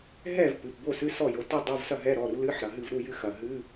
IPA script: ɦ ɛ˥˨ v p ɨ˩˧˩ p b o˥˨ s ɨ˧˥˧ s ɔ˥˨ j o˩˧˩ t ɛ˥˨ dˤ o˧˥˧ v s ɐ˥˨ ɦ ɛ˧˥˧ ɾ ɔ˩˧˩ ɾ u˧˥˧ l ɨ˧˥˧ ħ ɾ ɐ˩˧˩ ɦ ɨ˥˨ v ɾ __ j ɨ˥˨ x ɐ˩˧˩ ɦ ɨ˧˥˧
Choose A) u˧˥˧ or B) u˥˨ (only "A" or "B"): A